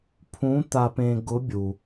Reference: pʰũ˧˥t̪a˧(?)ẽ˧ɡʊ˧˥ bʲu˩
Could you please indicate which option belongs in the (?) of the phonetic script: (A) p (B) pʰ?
A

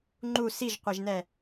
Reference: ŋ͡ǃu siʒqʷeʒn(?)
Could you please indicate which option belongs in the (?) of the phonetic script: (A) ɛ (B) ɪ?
A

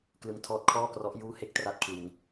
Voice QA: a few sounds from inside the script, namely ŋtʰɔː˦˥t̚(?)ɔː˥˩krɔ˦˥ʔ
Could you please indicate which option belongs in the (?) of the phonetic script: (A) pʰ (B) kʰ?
B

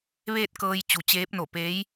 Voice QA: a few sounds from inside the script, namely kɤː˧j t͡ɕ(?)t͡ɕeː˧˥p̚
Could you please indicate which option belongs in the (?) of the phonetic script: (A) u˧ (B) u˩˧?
B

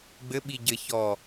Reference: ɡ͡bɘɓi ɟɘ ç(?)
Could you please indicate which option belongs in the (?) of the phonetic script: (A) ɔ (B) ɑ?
A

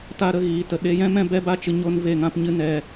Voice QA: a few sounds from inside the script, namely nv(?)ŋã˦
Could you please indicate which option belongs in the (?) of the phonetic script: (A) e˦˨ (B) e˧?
A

